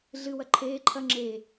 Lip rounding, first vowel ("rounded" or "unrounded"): unrounded